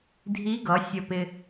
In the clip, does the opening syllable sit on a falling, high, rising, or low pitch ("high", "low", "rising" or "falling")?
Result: rising